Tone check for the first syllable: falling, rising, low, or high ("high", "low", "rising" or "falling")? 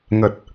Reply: low